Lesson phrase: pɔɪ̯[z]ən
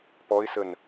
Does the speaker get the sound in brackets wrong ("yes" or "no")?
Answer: yes